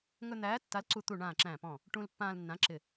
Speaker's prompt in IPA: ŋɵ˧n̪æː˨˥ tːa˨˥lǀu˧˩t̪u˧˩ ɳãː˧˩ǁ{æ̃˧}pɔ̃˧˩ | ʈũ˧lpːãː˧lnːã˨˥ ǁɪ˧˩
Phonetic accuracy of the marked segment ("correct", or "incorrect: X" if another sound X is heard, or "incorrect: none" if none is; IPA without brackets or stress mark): incorrect: æ̃˧˩